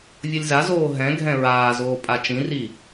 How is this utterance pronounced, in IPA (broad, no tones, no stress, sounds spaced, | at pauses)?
vʲ ʌ lʲ z a z oː ɦ ɛ̃ ɡʱ ɛ̃ ɹ aː z oː pʼ a t͡ʃ ĩ r i